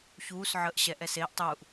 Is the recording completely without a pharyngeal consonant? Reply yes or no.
no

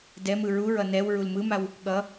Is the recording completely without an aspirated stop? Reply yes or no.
yes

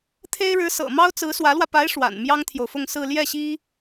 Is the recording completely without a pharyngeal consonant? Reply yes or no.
yes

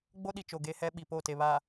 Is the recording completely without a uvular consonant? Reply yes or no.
yes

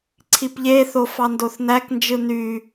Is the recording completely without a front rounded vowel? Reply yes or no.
no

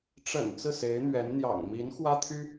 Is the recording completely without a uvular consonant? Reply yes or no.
yes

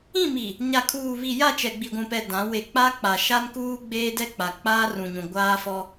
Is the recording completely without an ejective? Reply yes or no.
yes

